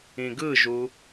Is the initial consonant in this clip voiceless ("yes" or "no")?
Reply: no